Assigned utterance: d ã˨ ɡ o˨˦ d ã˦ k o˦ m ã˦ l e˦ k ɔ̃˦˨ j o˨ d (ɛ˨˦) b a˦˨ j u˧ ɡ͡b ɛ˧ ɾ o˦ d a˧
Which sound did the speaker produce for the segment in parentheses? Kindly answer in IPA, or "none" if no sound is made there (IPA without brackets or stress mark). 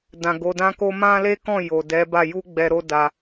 ɛ˨˦